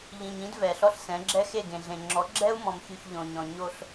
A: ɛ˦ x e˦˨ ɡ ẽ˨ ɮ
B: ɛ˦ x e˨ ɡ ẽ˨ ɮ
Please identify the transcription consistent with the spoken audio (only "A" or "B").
A